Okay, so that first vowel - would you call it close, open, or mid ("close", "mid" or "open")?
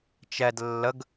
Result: mid